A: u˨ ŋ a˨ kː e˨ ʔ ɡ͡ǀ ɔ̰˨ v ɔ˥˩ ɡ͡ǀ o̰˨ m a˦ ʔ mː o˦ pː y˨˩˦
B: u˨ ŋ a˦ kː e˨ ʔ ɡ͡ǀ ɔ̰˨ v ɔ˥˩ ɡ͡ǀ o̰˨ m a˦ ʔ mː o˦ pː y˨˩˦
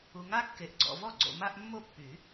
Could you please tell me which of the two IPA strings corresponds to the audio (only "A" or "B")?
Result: B